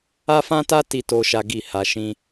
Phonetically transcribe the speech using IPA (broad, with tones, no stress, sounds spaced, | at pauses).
a˦ f ã˦ t a˦ t i˦ t o˦ ʃ a˦ ɡ i˦˨ h a˧ ʃ ĩ˧